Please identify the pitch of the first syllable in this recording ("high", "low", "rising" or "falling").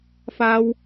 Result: high